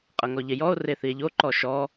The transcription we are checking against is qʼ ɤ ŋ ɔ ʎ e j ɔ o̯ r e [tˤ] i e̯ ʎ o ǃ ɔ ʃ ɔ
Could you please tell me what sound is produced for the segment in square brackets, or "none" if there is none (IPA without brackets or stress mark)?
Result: θ